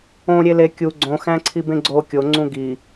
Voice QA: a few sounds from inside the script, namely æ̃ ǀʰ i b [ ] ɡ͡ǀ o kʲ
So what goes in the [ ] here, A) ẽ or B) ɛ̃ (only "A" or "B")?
A